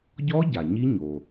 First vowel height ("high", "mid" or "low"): mid